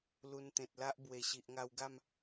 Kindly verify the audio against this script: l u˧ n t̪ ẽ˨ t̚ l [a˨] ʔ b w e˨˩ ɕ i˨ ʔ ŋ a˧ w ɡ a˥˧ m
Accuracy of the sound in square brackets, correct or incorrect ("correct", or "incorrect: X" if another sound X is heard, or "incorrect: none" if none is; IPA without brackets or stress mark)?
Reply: incorrect: a˦